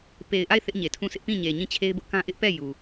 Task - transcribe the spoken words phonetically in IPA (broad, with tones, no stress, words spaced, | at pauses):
pe˨ɪ̯ʔa˦˨ɪ̯ θɪ˦ʔɲe˨tʰũ˦˨sɪ˦ʔ pĩ˦˨ɲe˨ ɲĩ˦˨t͡ɕʰe˦ɪ̯bʊ˦ʔkã˦ ʔɪ˦ʔpɛ˦˨ ju˨